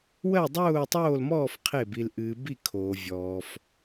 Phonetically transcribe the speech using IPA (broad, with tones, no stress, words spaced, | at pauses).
wɜ˥˨dˤʊː˥˨tˤoː˥˨lmɔː˥˨f qʰe˥˨bi˧l ʔɨː˧bi˥˨ kʰoː˧vʲɔː˧f